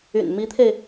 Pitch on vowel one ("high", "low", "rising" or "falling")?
low